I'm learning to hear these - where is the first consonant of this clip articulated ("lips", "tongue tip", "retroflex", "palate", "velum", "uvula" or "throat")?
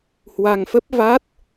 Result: throat